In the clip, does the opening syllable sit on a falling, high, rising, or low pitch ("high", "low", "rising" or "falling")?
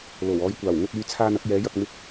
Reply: low